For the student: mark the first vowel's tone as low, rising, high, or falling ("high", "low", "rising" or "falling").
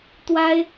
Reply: high